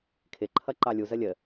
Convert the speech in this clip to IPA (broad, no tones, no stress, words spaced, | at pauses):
kʰɪǃʰʌ ǃɑlʲuzə lʲə